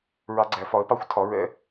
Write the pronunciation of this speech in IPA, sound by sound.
ɹ ɑ˦˥ ɡ͡ǀ æ˨˥ f ɒ˨˥ ə̯ p ɑ˦˥ xʷ tʰ ɒ˨˥ ɹ ɛ̰˦˥

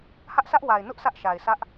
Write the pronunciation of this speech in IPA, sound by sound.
h ä˦ ʔ sʰ ä˦ ʔ w a˨ ɪ̯ n ʊ˦ ʔ s ä˦ ʔ ʃ a˨ ɪ̯ s ä˦ ʔ

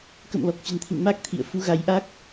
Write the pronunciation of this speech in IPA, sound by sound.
k ə̰˧˨ m l ɔ˨˩ k̚ t͡ɕ ə̤˨˩ n t̪ʰ ḭ˧˨ n m a˦˥ k̚ t̪ʰ ḭ˧˨ ə̯ f u˨˦ ɣ a˨˦ j ʔ a˦˥ k̚

